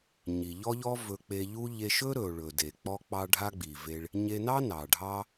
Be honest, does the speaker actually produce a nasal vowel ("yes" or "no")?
no